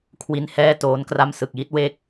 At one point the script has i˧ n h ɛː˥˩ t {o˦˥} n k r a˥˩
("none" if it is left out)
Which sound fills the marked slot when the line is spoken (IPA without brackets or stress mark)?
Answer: oː˦˥